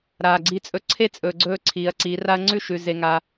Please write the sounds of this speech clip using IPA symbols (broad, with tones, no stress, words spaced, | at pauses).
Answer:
ɾaː˨ɡ͡ǀi˧t͡sʼɵ˧ ǀʰe˦t͡sʼɵː˨ɡ͡ǀɵː˧ ǀʰiː˨ɐ̯ǀiː˨˦ra˦ɐ̯ ŋ͡ǀʉ˦ʃʉ˨ ze˧ŋaː˧